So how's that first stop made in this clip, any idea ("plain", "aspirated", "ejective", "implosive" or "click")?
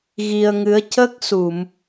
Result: plain